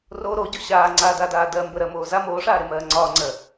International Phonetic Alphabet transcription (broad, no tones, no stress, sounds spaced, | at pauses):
r o ɾ o ɟ o ɕ aː ŋ͡ǀ aː d a d aː d ɜ m b ə ɾ ɜ m oː z a m oː ʂ aː ɾ e m ɜː ŋ͡ǀ ɒː ŋ͡ǀ ɜ